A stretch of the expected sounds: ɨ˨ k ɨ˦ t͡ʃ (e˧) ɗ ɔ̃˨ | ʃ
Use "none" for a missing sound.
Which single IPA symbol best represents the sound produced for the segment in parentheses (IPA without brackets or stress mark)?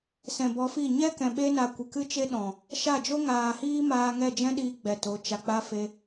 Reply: e˦